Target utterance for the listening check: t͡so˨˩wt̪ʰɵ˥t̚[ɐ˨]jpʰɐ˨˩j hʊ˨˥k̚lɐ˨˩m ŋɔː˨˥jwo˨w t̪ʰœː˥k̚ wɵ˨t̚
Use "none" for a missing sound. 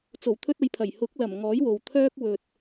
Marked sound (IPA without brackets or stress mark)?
ɐ˧